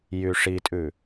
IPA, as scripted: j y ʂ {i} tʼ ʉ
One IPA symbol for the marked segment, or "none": i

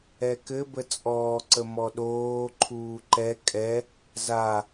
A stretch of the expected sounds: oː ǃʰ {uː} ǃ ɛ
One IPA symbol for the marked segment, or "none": uː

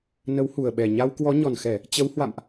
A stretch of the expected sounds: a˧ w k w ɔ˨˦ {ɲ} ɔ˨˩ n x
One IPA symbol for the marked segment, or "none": ɲ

